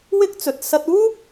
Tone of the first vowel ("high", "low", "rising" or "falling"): high